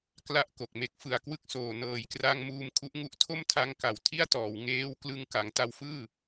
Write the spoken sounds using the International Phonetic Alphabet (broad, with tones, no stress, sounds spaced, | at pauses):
k l a˥˩ ʔ k o˨˩ k̚ m e˦˥ k̚ f ɯ˨˩ a̯ k w ɯ˦˥ k̚ s oː˨˩ n ɤː˨˩ j k r a˧ ŋ m uː˧ m kʰ u˦˥ ʔ ŋ u˦˥ ʔ tʰ o˥˩ m tʰ a˧ ŋ k a˨˩ w tʰ i˥˩ a̯ t ɔː˩˦ w ŋ eː˦˥ w k l ɯ˧ ŋ k a˩˦ ŋ t a˦˥ w f ɯː˥˩